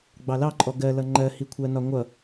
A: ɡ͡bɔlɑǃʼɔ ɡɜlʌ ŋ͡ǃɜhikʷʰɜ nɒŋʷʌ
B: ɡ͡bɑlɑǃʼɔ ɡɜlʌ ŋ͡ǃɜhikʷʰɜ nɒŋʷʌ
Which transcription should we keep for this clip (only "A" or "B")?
B